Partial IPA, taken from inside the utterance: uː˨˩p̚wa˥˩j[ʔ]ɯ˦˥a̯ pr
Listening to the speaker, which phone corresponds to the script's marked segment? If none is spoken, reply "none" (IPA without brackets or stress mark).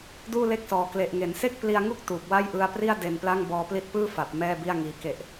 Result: ʔ